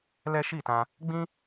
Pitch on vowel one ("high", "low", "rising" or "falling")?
high